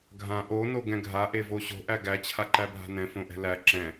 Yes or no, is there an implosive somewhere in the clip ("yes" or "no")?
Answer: no